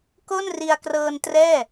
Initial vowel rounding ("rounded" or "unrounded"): rounded